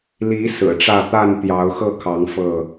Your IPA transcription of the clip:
li˨˦ sɹ̩˨˩ʈ͡ʂä˥˨ t̪a˥˨n t̪jɑ˨˦ʊ̯xɤ˥˨kʰɑ˨˦ŋ fɤ˥˨

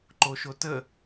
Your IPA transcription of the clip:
ǃoʃotə

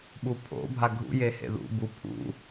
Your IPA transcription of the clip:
ɓupʰo̰bʱa ɡʱṵ jehḛðṵ bu pʰṵ

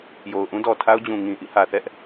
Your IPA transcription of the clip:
jo˨ʊ̯ʔũ˦ dɔ˨tʰa˦ʊ̯d͡ʑũ˨ ŋĩ˨ʔḭ˦˨ hä˨θɛ˦ʔ

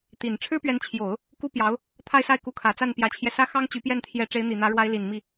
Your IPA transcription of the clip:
t̪i˨˩n ʈ͡ʂʰɻ̩˥pɥɛ˧˥nt͡ɕʰjo˨˩˦ʊ̯ | ku˥pjɑ˧˥ʊ̯ | t̪ʰa˥˧ɪ̯sa˥˩ɪ̯ku˧˥kʰä˨˩ t͡sa˥˩npjä˧˥t͡ɕʰjɛ˧sä˥ xɑ˥ŋt͡ɕy˧˥pjɛ˥˩nt̪ʰjɛ˧˥ ʈ͡ʂe˧˥ɪ̯n̪i˨˩n̪ä˧˥ɻwa˧˥ɪ̯ li˨˩n mi˥˩

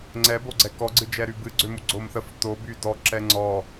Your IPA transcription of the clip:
ŋ͡ǀɛboɡ͡ǀɛ kɔɡ͡ǀɨd͡ʒɛ ɾybɨɡ͡ǀømu ɡ͡ǀomθəf toby dɔ ǁɛŋ͡ǀɔ

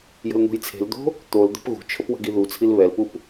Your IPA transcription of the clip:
jə̤ln̪ṳjt͡sʰe̤ld̪o̤ | t̪ol d̪ə̤pɣṳt͡ʃʰəp wə̤ɡiðut͡sʰil βɛlpup

